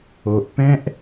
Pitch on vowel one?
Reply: low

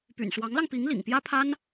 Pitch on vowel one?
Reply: low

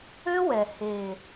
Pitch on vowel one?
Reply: high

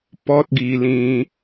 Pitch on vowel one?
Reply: high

